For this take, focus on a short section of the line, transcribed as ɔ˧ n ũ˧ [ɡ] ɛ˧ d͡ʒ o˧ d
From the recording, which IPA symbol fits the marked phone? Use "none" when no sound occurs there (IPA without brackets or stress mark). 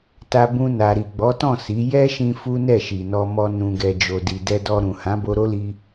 ɡ